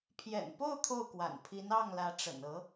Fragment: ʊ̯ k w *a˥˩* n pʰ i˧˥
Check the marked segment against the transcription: incorrect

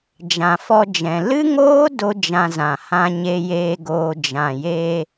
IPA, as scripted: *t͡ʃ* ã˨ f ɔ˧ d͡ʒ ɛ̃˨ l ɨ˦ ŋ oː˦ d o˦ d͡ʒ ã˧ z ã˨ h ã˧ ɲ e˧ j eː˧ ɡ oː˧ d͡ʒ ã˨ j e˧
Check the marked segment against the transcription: incorrect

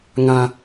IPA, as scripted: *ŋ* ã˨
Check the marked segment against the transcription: correct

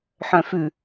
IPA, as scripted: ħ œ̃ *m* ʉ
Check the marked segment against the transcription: incorrect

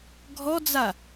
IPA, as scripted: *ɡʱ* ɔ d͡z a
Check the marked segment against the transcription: correct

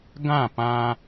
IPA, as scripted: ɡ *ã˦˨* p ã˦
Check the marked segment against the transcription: correct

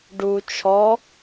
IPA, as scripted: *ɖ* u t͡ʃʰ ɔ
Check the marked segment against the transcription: correct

